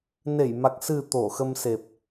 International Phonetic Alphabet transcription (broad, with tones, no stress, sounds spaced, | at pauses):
n e˧˩ j m a˨˩ k̚ s ɨ˨˩ t̪ o˧˩ x ə˧ m s e˨˩ p̚